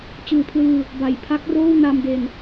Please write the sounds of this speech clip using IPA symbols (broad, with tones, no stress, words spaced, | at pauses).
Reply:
t͡ɕɯː˨˩pʰlɯː˧ | ba˨˩jpʰa˦˥k̚roː˥˩w na˧mde˧n